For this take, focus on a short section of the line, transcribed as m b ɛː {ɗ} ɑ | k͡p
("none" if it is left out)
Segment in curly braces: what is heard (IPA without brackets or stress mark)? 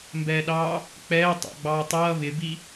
ɗ